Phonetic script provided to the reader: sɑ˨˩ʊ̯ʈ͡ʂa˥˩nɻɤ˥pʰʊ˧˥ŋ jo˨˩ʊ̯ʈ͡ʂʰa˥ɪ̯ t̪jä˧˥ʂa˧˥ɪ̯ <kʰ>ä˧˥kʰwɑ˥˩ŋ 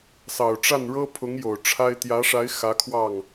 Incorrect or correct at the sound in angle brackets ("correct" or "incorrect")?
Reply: incorrect